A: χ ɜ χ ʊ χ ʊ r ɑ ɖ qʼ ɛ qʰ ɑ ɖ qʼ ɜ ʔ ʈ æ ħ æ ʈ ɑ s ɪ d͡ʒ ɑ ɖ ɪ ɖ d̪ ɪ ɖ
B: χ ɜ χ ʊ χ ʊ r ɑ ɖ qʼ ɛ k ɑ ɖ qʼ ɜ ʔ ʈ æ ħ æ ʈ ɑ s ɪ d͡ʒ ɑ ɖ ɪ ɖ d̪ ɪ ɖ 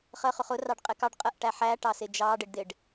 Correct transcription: B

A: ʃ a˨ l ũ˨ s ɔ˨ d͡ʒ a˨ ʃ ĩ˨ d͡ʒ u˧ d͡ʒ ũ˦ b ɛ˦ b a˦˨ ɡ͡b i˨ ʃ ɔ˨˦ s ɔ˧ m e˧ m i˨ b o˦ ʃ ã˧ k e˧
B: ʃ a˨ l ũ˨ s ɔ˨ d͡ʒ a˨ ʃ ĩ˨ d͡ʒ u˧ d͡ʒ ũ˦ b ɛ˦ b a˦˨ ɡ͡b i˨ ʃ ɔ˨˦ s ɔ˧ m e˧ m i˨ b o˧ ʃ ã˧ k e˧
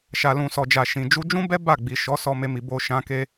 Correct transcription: B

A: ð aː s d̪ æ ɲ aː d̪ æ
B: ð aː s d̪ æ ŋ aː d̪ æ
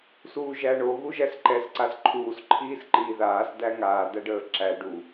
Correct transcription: B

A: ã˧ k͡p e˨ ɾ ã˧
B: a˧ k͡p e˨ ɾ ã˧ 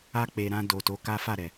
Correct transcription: B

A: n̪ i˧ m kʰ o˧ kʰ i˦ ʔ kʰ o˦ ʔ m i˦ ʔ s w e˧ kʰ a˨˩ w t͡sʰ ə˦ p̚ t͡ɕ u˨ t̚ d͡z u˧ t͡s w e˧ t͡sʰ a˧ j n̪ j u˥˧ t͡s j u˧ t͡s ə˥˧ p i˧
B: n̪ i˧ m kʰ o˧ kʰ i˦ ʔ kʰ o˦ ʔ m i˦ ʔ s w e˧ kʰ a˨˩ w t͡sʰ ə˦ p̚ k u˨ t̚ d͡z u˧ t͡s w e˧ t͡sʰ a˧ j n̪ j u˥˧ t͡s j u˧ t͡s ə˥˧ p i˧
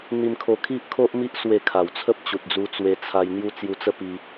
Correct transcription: A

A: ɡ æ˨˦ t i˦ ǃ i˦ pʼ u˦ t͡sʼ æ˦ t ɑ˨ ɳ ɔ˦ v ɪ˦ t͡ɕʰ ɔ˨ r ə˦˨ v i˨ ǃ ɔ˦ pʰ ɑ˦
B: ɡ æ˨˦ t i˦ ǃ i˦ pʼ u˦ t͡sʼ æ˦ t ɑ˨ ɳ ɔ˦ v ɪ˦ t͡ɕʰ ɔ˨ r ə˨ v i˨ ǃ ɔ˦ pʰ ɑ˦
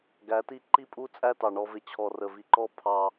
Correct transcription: B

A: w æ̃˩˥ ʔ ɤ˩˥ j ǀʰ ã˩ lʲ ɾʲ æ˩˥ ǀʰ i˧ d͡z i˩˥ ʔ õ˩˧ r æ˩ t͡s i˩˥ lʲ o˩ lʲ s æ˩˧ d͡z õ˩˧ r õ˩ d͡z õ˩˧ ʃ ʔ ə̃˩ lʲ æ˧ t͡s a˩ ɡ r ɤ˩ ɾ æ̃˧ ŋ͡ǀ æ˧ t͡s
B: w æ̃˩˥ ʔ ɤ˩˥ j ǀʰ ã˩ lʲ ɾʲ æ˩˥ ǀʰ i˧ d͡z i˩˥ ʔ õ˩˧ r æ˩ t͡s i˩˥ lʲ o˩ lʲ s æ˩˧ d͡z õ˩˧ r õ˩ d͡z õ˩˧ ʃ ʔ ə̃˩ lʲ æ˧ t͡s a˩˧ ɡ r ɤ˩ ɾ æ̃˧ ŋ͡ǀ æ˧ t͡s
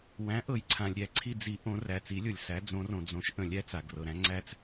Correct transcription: A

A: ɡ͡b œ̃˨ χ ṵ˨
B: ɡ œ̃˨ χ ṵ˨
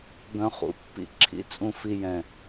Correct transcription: B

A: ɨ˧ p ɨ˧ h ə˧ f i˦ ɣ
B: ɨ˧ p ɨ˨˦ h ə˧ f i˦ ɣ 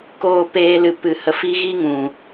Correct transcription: B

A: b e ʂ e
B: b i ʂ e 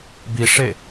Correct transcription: B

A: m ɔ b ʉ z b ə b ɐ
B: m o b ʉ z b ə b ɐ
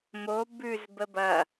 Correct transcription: B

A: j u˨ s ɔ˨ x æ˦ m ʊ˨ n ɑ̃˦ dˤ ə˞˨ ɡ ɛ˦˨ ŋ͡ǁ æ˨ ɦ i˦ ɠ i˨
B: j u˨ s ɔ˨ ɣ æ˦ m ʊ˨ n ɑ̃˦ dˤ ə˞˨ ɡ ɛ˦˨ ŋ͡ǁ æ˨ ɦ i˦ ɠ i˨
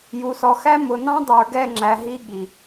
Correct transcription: A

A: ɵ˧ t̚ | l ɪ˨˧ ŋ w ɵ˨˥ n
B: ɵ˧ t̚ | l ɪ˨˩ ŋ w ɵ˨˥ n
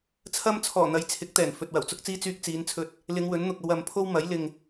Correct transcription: A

